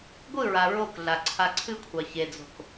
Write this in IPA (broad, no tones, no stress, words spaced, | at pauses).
ɡʷɨɹa ɹokɮa ǀʰaǀʰɨkʷʰɑ çed͡zo̤k